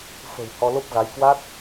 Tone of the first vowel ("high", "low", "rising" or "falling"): low